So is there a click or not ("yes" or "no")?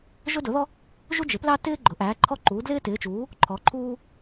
yes